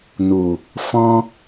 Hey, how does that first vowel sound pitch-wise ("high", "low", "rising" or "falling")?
low